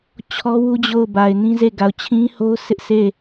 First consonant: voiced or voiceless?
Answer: voiceless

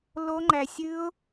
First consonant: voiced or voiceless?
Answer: voiced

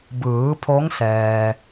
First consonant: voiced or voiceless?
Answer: voiced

